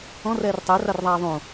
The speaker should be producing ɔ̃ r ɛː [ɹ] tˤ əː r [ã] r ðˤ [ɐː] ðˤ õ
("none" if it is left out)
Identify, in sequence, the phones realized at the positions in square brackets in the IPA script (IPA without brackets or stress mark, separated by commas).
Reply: r, a, aː